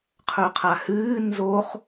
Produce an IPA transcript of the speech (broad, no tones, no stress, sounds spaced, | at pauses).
qʰ ɵ qʰ a h ɨː n z o χ